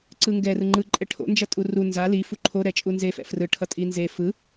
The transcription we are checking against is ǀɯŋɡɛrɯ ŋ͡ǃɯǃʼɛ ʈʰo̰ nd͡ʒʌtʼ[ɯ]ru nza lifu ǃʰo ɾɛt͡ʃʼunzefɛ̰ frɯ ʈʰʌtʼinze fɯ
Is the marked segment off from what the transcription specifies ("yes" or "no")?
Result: yes